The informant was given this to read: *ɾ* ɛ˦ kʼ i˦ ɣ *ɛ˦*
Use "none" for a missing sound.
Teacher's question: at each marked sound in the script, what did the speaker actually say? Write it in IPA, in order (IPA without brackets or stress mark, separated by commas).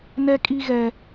n, ɛ˦